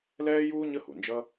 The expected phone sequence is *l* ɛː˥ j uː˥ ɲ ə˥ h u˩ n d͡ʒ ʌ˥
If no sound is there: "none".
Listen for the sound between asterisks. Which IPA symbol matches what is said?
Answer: l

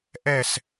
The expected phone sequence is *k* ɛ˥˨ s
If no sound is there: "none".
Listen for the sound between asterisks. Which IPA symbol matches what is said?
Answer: ʔ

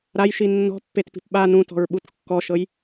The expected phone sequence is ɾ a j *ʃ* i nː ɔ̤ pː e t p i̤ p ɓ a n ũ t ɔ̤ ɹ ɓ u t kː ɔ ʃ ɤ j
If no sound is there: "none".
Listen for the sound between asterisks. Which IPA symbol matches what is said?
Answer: ʃ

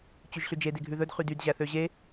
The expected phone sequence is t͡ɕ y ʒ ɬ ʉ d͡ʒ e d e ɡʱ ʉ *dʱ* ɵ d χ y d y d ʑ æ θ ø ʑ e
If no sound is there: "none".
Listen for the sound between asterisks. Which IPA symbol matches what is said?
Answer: ð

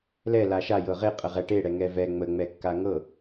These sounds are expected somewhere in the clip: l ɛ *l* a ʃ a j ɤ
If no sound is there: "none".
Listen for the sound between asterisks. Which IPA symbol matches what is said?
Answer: l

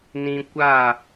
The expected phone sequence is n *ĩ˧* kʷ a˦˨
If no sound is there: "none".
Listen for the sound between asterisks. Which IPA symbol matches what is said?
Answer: ĩ˧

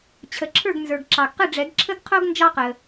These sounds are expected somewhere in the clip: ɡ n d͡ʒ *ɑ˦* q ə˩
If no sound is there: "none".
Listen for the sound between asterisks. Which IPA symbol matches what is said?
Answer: ɑ˦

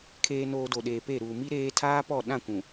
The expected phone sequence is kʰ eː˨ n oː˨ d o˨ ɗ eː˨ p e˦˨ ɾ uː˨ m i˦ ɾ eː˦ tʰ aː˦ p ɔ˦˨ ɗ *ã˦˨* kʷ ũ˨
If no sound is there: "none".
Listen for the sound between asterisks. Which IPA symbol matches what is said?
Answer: ã˦˨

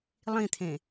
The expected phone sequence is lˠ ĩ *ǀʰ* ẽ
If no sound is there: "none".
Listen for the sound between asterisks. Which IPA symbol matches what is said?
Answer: t̪ʰ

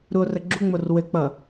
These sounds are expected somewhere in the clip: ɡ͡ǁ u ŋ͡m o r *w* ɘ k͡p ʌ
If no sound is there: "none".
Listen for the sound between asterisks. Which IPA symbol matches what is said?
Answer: w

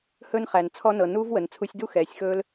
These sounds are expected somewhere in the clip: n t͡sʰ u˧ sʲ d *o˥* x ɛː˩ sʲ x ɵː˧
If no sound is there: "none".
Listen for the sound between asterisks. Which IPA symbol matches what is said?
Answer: u˥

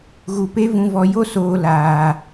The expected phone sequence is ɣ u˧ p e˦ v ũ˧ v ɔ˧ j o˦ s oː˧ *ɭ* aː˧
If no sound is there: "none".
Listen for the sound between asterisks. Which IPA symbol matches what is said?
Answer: l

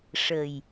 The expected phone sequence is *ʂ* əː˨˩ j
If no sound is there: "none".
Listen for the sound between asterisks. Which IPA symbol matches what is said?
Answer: ʂ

